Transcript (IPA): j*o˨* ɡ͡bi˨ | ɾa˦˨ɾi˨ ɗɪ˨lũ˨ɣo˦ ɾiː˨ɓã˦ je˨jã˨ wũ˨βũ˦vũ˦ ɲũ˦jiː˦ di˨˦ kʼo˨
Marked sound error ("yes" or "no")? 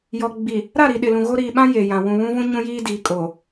yes